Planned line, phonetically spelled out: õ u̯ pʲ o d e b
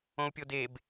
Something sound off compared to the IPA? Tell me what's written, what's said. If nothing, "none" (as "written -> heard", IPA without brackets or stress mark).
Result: none